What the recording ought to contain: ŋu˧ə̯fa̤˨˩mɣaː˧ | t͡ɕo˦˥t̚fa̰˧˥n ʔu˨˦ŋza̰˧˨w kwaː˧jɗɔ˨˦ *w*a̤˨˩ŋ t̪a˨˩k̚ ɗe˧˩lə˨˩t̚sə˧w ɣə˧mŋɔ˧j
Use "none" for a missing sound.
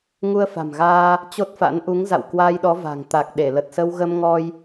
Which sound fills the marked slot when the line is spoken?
v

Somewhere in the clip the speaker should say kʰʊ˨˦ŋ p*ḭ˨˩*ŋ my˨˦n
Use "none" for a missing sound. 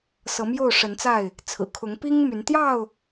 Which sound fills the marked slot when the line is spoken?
i˦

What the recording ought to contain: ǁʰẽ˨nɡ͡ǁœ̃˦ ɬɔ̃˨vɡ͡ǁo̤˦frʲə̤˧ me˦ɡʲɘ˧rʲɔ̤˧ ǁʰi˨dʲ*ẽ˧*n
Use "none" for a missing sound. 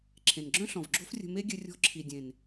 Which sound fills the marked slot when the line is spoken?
ẽ˨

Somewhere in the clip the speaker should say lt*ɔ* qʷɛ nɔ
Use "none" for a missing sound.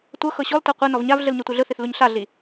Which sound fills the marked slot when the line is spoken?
ɤ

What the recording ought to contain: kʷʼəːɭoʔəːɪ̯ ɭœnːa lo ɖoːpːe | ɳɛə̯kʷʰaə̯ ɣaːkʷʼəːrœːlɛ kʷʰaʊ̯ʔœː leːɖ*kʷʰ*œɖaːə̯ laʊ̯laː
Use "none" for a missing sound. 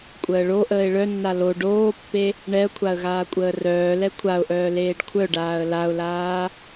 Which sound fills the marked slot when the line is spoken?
kʷʰ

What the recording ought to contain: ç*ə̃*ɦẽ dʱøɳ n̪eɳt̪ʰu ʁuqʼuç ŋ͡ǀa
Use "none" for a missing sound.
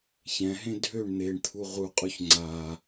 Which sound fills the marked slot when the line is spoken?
ɛ̃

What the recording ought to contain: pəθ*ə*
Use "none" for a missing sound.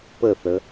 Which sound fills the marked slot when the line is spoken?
ə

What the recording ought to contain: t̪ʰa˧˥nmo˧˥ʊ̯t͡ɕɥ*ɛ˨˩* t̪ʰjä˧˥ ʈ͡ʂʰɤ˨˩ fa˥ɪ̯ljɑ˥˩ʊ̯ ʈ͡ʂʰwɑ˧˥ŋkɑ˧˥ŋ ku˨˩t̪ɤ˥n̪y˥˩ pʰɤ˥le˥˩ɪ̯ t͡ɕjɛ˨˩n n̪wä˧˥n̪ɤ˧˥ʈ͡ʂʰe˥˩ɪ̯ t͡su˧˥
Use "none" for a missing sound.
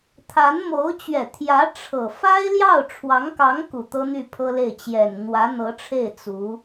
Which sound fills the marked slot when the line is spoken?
ɛ˨˩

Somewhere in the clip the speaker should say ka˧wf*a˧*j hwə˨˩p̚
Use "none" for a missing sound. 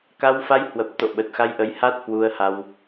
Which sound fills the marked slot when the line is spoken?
a˧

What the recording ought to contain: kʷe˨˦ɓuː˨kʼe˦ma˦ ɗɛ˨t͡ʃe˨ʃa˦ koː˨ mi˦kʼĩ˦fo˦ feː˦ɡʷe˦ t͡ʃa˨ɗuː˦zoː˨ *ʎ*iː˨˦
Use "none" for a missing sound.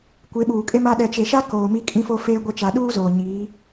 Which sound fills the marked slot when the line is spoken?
ɲ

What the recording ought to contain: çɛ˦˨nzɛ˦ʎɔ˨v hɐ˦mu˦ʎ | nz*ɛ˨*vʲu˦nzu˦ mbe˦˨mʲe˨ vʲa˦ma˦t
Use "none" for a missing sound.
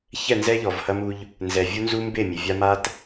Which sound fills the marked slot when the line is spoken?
ɛ˨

